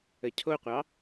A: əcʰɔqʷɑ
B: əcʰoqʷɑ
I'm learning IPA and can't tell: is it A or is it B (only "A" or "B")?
B